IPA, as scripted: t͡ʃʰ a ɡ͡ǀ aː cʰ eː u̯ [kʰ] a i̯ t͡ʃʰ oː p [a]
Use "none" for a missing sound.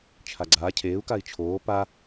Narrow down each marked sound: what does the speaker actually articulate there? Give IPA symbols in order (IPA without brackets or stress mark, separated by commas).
k, a